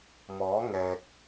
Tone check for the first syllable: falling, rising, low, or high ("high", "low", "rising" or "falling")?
rising